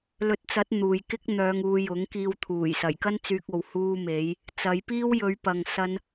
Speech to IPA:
lɵ˨˥t̚t͡sɐ˨˥t̚ n̪uː˨j kɪ˥k̚n̪œː˨˧ŋuː˨˧ jʊ˨˥ŋkiː˧w t̪ʰuː˨˩j sɐ˨˩jkɐ˥nt͡syː˧k̚o˨w huː˧me˨˧j | t͡sɐ˨˧jpiː˥w jɵ˨˧ɥpɐ˨ŋ sɐ˧n

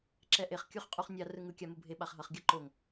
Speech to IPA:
ǁɛʔeχ kʲuχqʼuχnʲa rɯŋɯ kʲamubʱe ɓaχɦʌχ ɡʲʌǃoŋ

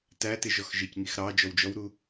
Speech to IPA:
tætɪ ʒɔxʒɪcŋix ɾɑ d͡ʒɔwd͡ʒɔwɾu

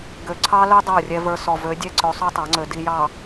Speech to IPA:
ɡø˨ ǀʰɑ˦lø˦ dˤə˞˦˨rʲɛ˦və˞˦ sɔ˨ vø˨˦dʲɛ˦ǀø˨˦ sˤø˦tˤa˨˦ŋ͡ǀø˨ di˨jɑ˨

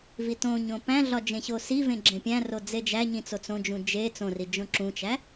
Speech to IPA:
vitõɲõ pæ̃ɮɒ d͡ʒẽɕosivẽ ɡ͡ǁẽpʲæ̃ro d͡zed͡ʒæɲĩ t͡sot͡sõd͡ʒũ d͡ʒe t͡sõri d͡ʒõǁũt͡ʃæ

